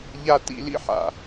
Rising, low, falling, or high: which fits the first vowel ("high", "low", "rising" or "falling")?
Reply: high